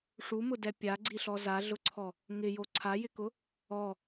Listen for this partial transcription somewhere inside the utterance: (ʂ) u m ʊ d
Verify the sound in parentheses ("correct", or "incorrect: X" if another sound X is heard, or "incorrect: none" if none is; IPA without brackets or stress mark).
correct